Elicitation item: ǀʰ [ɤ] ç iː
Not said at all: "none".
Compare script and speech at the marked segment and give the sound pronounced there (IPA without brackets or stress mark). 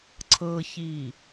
ɤ